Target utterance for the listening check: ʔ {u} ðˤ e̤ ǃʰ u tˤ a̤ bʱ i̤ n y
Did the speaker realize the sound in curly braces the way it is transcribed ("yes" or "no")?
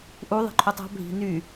yes